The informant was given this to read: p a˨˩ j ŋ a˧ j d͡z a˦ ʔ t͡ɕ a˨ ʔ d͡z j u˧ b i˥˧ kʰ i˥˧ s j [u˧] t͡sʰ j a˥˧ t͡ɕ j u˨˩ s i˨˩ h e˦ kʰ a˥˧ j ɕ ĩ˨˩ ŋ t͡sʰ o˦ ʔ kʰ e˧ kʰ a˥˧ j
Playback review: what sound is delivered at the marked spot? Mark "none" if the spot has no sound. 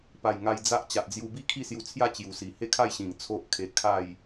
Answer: u˧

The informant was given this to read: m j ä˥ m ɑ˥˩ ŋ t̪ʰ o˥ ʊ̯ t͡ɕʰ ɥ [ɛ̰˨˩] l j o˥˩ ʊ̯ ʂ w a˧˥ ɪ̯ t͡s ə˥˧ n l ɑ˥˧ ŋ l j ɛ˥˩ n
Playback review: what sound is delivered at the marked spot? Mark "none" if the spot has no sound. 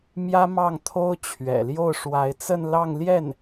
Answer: ɛ̰˨˩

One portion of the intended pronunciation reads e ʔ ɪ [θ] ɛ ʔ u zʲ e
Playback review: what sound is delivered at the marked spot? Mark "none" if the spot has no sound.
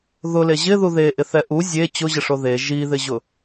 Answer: θ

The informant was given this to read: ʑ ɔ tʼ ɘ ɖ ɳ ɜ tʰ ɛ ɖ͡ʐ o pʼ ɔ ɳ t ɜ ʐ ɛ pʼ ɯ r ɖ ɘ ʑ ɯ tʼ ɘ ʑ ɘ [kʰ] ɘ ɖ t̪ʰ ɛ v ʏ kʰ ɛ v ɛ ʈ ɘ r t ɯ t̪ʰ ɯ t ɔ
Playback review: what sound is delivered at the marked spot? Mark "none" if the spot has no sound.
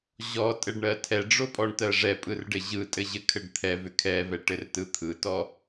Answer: kʰ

